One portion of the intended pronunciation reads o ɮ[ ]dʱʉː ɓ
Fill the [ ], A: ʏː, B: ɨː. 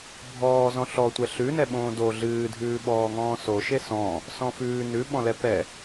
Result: B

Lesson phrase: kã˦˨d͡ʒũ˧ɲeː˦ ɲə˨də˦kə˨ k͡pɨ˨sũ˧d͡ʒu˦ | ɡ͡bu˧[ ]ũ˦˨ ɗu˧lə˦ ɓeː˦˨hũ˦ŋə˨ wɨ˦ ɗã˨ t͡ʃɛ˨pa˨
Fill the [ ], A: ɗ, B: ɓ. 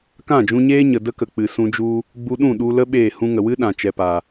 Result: A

